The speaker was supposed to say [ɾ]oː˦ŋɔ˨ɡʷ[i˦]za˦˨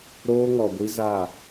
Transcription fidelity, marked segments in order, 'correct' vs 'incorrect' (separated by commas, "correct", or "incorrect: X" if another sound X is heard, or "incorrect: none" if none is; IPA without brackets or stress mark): correct, correct